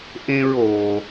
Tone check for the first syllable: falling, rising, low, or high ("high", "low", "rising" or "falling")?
high